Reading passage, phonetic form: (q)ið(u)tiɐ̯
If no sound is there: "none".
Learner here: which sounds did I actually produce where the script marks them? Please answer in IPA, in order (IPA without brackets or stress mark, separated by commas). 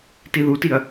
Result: t, u